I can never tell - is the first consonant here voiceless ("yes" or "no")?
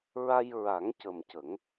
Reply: no